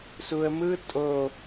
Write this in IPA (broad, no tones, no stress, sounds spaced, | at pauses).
s u ə̯ m ɯ tʼ o